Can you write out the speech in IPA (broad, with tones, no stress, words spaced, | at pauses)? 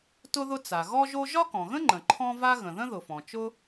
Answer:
tʊ˥ðʊ˥ t͡sa˩ɣɔ˥ʒo˥ ʒɒ˥kɔ̃˩ɣə̃˥ŋ͡ǃə̃˩ ǃʰɔ̃˥va˥ ɣə̃˩ðə̃˥ðʊ˩fɔ̃˩ t͡ʃʊ˥